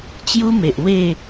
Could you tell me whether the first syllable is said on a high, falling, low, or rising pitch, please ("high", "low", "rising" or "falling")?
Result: high